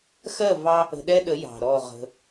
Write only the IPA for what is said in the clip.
x ɜ˦˨ v ɑ˦ | ə̤˧ ɗ ɛ˦ ɗ ə˨˦ j ɑ̤˨ ɾ ɔ˦˨ ʁ ə̤˧

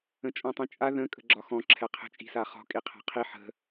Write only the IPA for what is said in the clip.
ə̃ t͡ʃʼ ɔ̃ tˤ ĩ t͡ʃʼ a ð ə̃ kʼ ə̤ ɡ͡ǁ ɒ x ɔ̃ ǁʰ ɛ qʰ ə̤ t͡ʃʼ i̤ s a χ ɔ̤ kʼ i qʰ a̤ qʰ i ħ ə̤

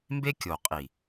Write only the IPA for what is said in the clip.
m b e˦ kʲ o˨ qʼ i˨

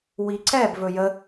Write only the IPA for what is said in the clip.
w i ǀ ɛ b v ɵ j ə

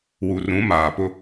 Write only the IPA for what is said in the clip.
w u˨ r ũ˨˦ m aː˨ p ʊ˦

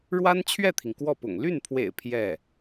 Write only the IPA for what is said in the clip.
ɻ w a˥ n t͡ɕʰ ɥ ɛ˥˩ t̪ʰ i˩ ŋ k w ɔ˥˩ p ʊ̰˨˩ ŋ l y˥˩ n pʰ w ḛ˨˩ ɪ̯ pʰ j ɛ˥˩

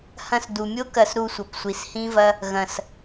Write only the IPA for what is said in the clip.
h ɐ̃˧ s d u˨ mʲ o˦ k ɐ˧ s ɾ u˧ sʷ ɐ˨ p sʷ i˨ s h ĩ˦ v ɐ˦ | ɣ ɐ̃˨ s

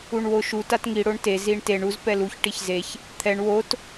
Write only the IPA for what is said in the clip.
u ɳ w o ʃ u t a t ŋ i ɽ o ɳ t e z i ɳ t e ɳ u z p ɛ l u ç ʈ i ç z e ç | t̪ʰ ɛ ɳ w o t

